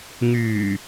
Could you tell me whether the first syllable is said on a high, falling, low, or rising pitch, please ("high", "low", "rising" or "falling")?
low